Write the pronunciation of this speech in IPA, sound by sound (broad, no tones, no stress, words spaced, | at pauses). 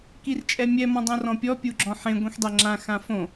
kirt͡ʃʼɛmʲɛ mɔ̃dˤõrɔ̃pʲɔ pʲuɡ͡ǁɔ̃ħẽ ɡʷĩxdˤɛŋ͡ǁã xãfõ